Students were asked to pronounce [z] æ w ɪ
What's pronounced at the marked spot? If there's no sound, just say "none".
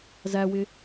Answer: z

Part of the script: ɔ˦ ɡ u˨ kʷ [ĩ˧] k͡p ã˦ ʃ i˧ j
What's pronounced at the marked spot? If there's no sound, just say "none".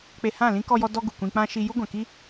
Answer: ĩ˧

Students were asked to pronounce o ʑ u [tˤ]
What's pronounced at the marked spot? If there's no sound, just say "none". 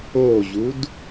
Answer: d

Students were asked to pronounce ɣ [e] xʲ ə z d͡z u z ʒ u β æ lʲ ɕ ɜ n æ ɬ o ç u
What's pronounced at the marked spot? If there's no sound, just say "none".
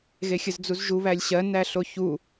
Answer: e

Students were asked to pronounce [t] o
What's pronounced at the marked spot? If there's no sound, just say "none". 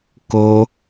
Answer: k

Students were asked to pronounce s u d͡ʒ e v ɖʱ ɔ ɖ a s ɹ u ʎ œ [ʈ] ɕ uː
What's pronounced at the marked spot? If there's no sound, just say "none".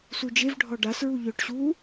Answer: ʈ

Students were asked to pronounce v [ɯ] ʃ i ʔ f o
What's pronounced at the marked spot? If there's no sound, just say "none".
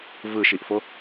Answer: ɯ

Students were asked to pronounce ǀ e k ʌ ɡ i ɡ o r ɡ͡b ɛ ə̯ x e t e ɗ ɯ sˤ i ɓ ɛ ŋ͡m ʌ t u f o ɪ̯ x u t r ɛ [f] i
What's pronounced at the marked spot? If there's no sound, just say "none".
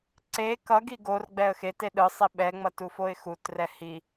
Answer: h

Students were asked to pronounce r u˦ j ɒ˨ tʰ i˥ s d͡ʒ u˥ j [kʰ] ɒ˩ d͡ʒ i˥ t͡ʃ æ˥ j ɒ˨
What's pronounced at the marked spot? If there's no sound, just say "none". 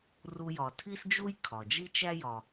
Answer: kʰ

